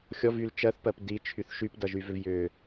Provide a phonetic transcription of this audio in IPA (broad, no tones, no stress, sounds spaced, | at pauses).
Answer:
xʲ ɔ v y l t͡ʃ ɜ θ p ɜ p d i t͡ʃʰ y θ ʃ y p d ʌ ʒ y v ʏ v j ʏ